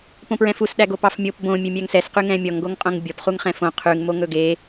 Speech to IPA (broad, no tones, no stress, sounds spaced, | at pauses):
p õ p ɹ ɛ̃ f u s ɗ æ ɡ o p ɑ f mʲ o p b õ mʲ ø mʲ æ ŋ s ɛ s q y ŋ ɛ̃ mʲ ɔ ŋ ɡ o ŋ qʼ õ ŋ bʲ ɔ p χ u ŋ χ ɛ̃ f õ qʰ ʉ ŋ m o ŋ ɵ ɡ e